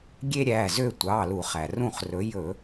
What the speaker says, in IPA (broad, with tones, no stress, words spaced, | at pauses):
ɡʲe˥ɾʲæ˩˧˩zø˥˨ tʷɑ˩˧˩lu˧˩˧χ æ˩rũ˥˨χrɵ˨˥ jɵ˧˩˧